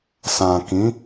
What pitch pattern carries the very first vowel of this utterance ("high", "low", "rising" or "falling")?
low